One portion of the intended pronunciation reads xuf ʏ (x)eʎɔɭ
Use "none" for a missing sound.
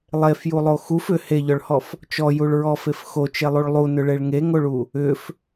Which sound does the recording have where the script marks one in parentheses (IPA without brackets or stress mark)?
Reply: h